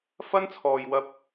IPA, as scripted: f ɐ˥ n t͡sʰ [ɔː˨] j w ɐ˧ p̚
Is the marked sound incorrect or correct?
correct